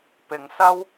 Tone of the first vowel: low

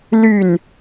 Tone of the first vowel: falling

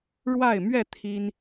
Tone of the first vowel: falling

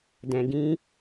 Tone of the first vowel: low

